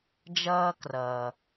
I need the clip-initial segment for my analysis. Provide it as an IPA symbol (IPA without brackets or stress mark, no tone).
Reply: d͡ʒ